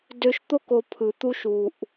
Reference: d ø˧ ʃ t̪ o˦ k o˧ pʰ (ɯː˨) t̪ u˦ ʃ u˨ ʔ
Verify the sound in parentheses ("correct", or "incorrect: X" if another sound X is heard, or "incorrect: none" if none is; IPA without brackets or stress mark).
incorrect: ɯ˨